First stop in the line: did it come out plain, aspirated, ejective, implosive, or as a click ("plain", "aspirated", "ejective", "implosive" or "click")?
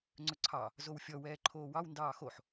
click